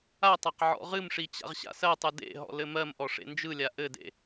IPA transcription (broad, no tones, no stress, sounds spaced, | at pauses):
a tˤ a q ʕ ɔ̰ ʁ ɨ m ʂ i t͡ɕ a̰ ʁ ɕ a̰ s ɜ tˤ ɯ d ḛ ɦ ɔ̰ l ɘ m ɜ m ʔ ɔ ʂ ḛ n d͡ʒ ɯ lʲ a ʔ ɘ d ḛ